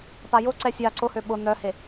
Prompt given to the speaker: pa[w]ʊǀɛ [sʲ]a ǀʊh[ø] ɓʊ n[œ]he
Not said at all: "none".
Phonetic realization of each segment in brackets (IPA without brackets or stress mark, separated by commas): j, sʲ, ø, œ